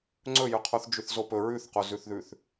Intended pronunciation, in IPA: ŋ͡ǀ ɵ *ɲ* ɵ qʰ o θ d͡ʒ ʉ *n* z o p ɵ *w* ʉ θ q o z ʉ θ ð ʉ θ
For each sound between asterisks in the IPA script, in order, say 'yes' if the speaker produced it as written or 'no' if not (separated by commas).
no, no, no